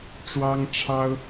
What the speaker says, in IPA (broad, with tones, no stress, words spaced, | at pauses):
ʈ͡ʂwɑ˥ŋʈ͡ʂʰɑ˥ʊ̯